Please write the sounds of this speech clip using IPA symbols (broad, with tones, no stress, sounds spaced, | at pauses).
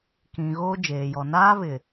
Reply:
k ĩ˨ ɣ oː˦ d͡ʒ eː˨ j ɔ˨ n aː˦ β ɪ˨